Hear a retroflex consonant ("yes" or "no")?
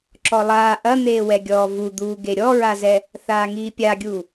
no